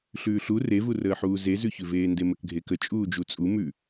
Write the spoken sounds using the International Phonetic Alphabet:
ɬʉːɬu revurəːħuː zezʉçʉveː ndeməkɡʱekə t͡ʃʼuːd͡ʒut͡sʼu mʉ

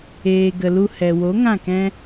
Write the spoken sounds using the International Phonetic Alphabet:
eː˨ɡə˨lu˧ hɛ˨wo˨˦ ŋã˦˨kɛ̃˦

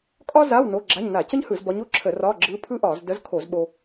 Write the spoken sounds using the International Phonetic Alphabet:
kʼɒ˥za˧˥˧w no˧˥˧ɡ͡ǁa˧˥˧ɲ na˧˩˧cə˥ɲhɯ˧˩˧z bɒ˧˥ɲ o˥˧ǁʰə˧˩˧ rɒ˧˥˧ɡ͡ǁɯ˧˥pʰɯ˥ʔɒ˧˩˧z də˧˥zkʰo˧˩˧z ɓo˧

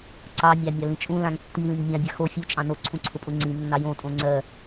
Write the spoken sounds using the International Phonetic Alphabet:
ǀɑmʲɑ mʲɑlĩt͡ʃʼũlãŋ tːilĩŋ mʲãbʲa xo fʲu t͡ʃʼɑ̃noǀʰũ ǀʰʊpʼʊŋ͡ǀĩnːɑ jõtʼõ ŋ͡ǀɜ

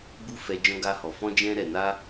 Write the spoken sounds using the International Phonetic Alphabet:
bu˦fɛ˧ d͡ʒɔ̃˦ɡa˦hɔ˧ fɔ̃˦d͡ʒɛ̃˦ ɾɛ˧ na˦

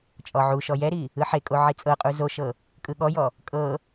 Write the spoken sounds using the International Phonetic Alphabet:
t͡ʃʼɔʕuʃɔ jɛɾi | ɯħekʼo ʕit͡sʼɤqʼu zoʃɤ | kʼɯɠɔjɔ | kʼɤ

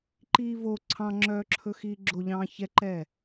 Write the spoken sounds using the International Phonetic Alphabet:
ǃiːvo ǀʰɑ̃ŋ͡ǁœːǁʰɵ xiːɡ͡ǁo ʎɑ̃ːçɛǃɛː

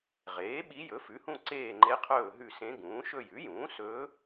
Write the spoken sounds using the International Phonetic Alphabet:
ʁeː˩˥ ɓi˧˥ jɵ˩˥fʉ˩˥hũ˦˨ ǀeː˦˨ŋ͡ǃe˧˥qʰɵː˦˨ ɦʉ˦˨sẽ˧˥ɡũː˩˥ ʃɵ˦˨jʉ˩˥jũː˩˥ sɵː˧˥

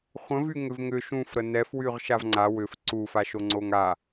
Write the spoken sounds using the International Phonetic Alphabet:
χʷə̃vy ŋʏvŋʏ ʃũfɾə nɛfwyʁ ʃavŋ͡ǀa wʏf ǀufa ʃoŋ͡ǀoŋa

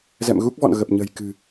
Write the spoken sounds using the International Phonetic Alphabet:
zɛ̰˧˨mɣu˦˥k̚vɔ̰˧˨n ɣə˨˩p̚ɲə̤˨˩j kɨ̤˨˩

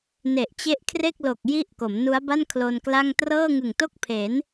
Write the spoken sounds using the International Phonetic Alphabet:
ne˨˩ʔt͡ɕe˦˥ʔkʰre˥˩k̚lo˨˩k̚ ji˥˩ʔ ko˩˦mnu˦˥a̯ba˥˩n kʰlo˧nkla˥˩ŋ trɤː˥˩ŋɯ˨˩ŋto˥˩k̚pʰe˩˦n

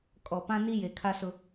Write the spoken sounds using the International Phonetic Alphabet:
kʼɔ˨ pã˦ni˦ je˨ kʰa˦sʊ˦

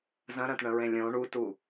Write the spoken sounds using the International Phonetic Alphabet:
zɐ̃ɾɐ̃tɳə̃ɹẽ lʲõ ɳutu

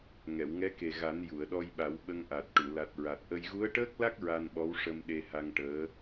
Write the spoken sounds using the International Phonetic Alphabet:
ŋɛ˨˩˨wŋɛ˧˥ke˨˩ɣa˨˩˦n ju˨˩˨ə̯ɗɔ˧jɓa˨˩˦w ɓə˧ŋʔa˨˩t̚ʈu˨˩˨ la˨˩t̚ɹa˨˩t̚ʔə˧j ɣu˧˥ə̯ʈəː˦˥k̚la˦˥k̚ ɹa˧nɓɔ˧˥wʂə˧m ɗe˧ha˧ŋʈəː˧˥

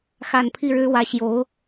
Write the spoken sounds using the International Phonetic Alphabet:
xa˥˧n pʰi˥˩ɻɻ̩˥wä˧˥ ɕjo˧˥ʊ̯

